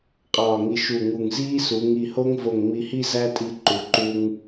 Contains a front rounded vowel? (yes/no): no